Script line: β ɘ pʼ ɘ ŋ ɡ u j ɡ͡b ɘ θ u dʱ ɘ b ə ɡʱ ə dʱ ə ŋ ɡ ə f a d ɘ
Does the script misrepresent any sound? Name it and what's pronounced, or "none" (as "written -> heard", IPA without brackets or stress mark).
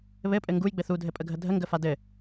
b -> pʼ